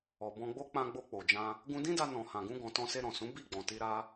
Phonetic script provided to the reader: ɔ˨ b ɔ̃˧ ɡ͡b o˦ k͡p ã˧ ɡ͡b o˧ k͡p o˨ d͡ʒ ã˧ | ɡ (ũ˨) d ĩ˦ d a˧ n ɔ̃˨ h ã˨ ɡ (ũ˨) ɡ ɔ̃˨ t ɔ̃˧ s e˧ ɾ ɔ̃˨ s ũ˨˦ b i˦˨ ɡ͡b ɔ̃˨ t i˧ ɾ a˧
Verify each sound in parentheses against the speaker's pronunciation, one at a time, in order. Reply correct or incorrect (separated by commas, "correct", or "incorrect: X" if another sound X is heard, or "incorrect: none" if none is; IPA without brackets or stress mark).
incorrect: ũ˧, incorrect: ũ˧